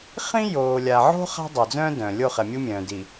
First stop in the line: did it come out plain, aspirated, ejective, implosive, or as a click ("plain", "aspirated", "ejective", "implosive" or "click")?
plain